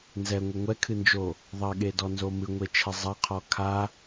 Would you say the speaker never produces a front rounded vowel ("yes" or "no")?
yes